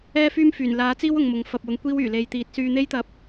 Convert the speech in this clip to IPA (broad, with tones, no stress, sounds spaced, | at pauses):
ɛː˥ f yː˥ m f yː˨˩ n l aː˨˥ t͡s iː˥ w ʊ˨˧ ŋ m ʊ˨˧ ŋ f ɐ˨ p̚ w ʊ˨˧ ŋ kʷ iː˥ w yː˨˩ l e˧ j t̪ iː˧ t̚ s yː˧ n̪ e˥ j t̪ ɐ˧ p̚